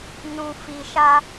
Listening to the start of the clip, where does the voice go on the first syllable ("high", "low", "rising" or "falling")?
low